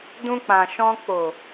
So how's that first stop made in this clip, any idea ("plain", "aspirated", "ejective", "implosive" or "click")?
plain